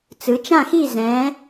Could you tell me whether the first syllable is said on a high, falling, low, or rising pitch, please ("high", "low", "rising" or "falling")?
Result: rising